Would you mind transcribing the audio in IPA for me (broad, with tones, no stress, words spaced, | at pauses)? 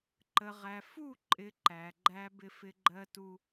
ǃə˨ʁæ˨ fu˦˨ ǃʼɪ˨˦ǃæ˨ɡ͡ǃæ˦ bɪ˦ fɪ˦ɡ͡ǃɜ˦tu˦